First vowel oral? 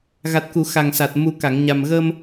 yes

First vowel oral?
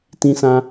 no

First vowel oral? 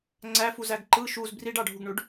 yes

